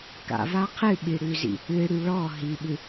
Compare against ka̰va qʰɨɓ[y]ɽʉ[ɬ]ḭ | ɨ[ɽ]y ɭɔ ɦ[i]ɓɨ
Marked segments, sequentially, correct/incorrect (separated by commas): incorrect, incorrect, correct, correct